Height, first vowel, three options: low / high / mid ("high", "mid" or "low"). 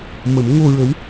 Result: mid